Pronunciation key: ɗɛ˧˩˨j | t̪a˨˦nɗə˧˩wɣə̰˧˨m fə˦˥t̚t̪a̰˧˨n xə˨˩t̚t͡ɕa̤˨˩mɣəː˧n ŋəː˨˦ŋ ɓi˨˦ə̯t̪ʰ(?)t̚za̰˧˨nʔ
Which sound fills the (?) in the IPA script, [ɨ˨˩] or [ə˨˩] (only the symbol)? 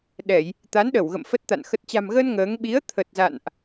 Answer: ə˨˩